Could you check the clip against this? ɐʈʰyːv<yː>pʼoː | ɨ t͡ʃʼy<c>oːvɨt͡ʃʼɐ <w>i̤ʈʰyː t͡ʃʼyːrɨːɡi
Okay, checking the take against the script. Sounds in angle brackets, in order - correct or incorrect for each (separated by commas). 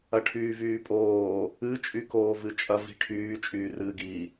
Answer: correct, incorrect, incorrect